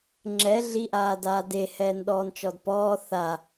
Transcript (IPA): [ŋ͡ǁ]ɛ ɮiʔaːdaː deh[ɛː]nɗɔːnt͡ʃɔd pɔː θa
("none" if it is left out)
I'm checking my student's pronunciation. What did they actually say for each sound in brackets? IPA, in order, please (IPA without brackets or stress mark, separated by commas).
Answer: ŋ͡ǁ, ɛː